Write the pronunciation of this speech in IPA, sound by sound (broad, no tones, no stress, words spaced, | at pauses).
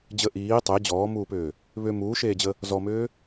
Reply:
d͡ʑə ʔiː tˤe d͡ʑɔːmuːpʏː | βʏ muːʃeːd͡ʑə | zɔmʏː